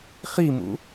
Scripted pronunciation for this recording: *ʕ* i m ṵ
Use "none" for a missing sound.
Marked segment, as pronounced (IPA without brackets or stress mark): χ